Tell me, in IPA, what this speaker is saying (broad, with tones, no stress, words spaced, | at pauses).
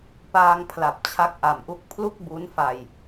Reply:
paː˧ŋpʰla˨˩p̚ t͡ɕʰa˦˥k̚ʔa˨˩mʔu˦˥k̚ pʰlu˥˩k̚bu˦˥nfa˧j